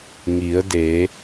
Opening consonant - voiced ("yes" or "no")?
yes